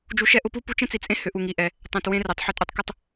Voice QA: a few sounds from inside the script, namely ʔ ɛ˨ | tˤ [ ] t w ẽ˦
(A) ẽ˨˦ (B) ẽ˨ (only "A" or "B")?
B